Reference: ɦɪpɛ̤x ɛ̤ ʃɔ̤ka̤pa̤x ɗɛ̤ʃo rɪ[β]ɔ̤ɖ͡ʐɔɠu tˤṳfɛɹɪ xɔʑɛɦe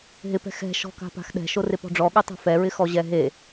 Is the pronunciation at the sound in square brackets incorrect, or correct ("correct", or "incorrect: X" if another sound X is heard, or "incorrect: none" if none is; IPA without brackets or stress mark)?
incorrect: p